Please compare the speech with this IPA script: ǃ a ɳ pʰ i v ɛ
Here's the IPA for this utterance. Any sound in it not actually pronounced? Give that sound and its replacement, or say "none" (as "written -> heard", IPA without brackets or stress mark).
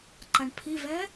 none